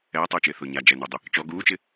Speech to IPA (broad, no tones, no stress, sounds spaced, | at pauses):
ɛː tˤ uː t͡ʃ ɪː θ ʊː ɲ a d͡ʒ ɛ n ʊː dˤ ɪ | t͡ʃ ɔ ɡ uː t͡ʃ ɪ